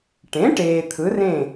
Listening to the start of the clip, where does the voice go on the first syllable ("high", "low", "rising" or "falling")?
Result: rising